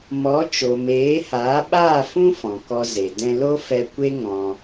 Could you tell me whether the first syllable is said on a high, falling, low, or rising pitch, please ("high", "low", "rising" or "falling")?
rising